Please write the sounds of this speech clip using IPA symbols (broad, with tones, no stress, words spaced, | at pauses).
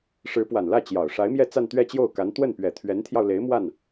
ʂɻ̩˧˥pwa˨˩nlä˥˩ t͡ɕjɑ˨˩ʊ̯ ʂa˧˥ɪ̯mjɛ˥˧ t͡sa˥˧nt̪ɥɛ˥˧t͡ɕjo˥˩ʊ̯ka˧˥n t̪wə˥˩npɥɛ˨˩ t̪ʰɥɛ˧˥nt̪ʰjɑ˧ʊ̯le˧˥ɪ̯ mwa˥˩n